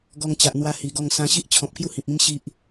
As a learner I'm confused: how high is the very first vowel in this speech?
mid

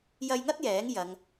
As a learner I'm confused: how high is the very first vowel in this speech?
low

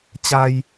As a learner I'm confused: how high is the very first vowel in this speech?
low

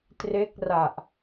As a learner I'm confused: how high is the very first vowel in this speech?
mid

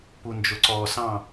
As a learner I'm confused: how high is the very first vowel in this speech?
high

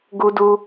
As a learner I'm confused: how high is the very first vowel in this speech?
high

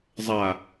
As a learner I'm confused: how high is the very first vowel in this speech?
low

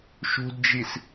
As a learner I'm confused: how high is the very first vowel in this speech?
high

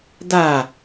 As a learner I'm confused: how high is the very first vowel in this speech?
low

